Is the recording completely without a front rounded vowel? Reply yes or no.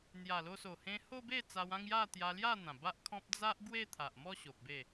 yes